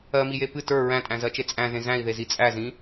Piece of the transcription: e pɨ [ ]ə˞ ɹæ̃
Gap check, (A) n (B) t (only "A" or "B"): B